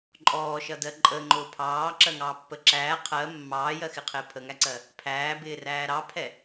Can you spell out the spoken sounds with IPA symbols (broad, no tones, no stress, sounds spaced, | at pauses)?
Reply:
ǃʼ ɔː ʃ ʌ d ɜ ǃʼ ə ŋ͡ǃ ʊː pʰ ɑː ǁ ɜ ŋ ɑː pː ə ǁ æː qʰ ɜ mː ɑː j ɜ x ɪ qʰ ɪː pʰ ə ŋ æ ǀ ɜ | pʰ æː b ɪː r æː ɾ ɑ pʰ ɛ